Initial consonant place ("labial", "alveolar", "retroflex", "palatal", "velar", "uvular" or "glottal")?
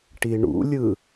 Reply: retroflex